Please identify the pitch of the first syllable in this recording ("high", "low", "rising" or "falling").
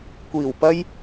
low